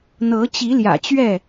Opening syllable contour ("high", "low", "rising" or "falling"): rising